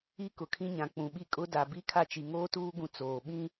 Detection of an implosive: present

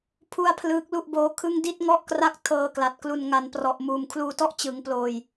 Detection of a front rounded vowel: absent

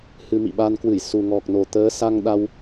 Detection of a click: absent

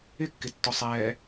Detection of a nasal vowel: absent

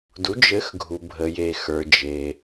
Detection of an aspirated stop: absent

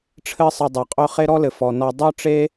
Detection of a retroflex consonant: present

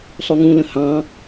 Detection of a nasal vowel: present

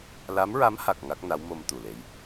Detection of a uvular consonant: absent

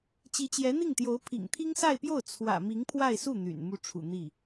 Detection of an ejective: absent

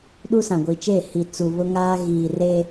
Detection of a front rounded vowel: absent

